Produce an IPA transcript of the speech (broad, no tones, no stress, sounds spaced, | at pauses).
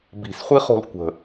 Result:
b i̤ s χʷ i χ o̤ l kʷ ə̤